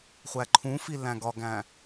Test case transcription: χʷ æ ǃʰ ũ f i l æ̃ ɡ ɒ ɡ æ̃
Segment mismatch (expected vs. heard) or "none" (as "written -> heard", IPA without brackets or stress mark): none